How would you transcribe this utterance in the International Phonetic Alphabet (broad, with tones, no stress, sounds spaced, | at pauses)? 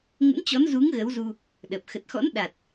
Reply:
ŋ ə̰˧˥ n t͡ɕ ɔ˨˦ n z u˨˦ ŋ ɣ ə˨˦ w z u˧ | ɗ ə˨˩ p̚ x ə˨˩ t̚ x ɔ̰˧˥ n ɗ a˨˩ t̚